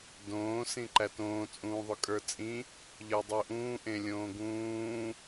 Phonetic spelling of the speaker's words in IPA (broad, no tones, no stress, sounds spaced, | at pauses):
d õː s ĩ ǃ æ t õː t͡sʼ ũː ðˤ ʊ kʼ ə˞ t͡sʼ ĩ | ʎ ə˞ dˤ u ʔ ũː ʔ ẽ lʲ õː ɡ ũː